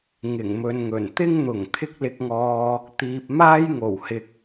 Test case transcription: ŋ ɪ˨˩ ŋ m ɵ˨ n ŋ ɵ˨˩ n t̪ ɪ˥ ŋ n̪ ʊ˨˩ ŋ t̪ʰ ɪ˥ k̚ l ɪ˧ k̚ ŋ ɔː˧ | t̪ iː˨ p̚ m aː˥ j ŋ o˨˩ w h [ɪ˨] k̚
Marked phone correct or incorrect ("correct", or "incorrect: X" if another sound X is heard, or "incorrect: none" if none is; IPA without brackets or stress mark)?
correct